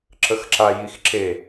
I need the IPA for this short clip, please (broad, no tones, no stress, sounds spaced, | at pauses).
ǁ ə x ǁ a j i x ǁ e